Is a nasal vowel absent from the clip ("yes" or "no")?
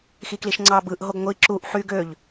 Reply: yes